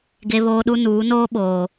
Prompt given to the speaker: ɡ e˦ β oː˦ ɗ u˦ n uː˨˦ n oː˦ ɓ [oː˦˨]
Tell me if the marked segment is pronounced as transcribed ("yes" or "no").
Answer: no